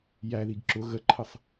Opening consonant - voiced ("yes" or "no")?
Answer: yes